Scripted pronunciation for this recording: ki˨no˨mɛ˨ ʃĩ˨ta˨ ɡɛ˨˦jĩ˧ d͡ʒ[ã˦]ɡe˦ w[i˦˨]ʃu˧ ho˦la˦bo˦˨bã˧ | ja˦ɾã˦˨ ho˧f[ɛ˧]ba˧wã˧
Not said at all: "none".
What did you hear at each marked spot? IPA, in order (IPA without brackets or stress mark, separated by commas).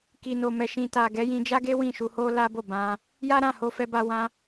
a˦, ĩ˦˨, ɛ˧